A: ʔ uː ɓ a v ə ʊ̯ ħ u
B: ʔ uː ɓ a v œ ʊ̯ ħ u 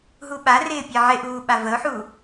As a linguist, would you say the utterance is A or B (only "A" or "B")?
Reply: A